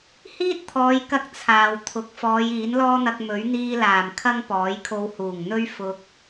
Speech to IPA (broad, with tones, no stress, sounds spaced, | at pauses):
h iː˥ t̚ t̪ʰ ɔː˨˧ j k ɐ˧ k̚ t͡sʰ aː˨ w t̪ʰ ʊ˨˥ k̚ f ɔː˨˧ j iː˨˥ n l ɔː˥ n̪ ɐ˧ k̚ m ɵ˨˥ ɥ n̪ iː˧ l aː˨˩ m kʰ ɐ˥ ŋ p ɔː˨˥ j kʰ o˧ w h uː˨˩ ŋ n̪ ɵ˥ ɥ f ʊ˧ k̚